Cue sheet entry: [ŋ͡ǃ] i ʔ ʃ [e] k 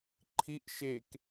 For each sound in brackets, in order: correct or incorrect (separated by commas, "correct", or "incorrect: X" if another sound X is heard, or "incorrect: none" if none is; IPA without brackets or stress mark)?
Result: incorrect: ǃʰ, correct